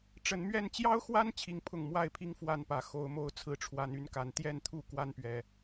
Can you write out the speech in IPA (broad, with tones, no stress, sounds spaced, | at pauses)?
ʈ͡ʂ ə˨˦ n m ɥ ɛ˥˨ n t͡ɕ j ɑ˦ ʊ̯ x w a˦ n t͡ɕʰ i˦ ŋ pʰ ʊ˥˨ ŋ m w a˥˨ ɪ̯ pʰ i˦ ŋ f w a˥˨ n p ä˨˦ x o˨˦ ʊ̯ m o˦ ʊ̯ t͡sʰ ɹ̩˨˦ ʈ͡ʂʰ w a˨˦ n y˥˨ n k a˨˦ n t̪ j ɛ˥˨ n t̪ʰ u˥˨ k w a˦ n p ɥ ɛ˨˩